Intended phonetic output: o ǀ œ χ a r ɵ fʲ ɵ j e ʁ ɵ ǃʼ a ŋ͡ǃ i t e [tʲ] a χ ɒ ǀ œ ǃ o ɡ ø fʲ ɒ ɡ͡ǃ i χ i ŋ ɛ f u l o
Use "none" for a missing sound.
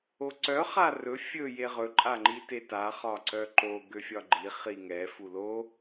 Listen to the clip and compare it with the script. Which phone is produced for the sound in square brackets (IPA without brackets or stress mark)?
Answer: t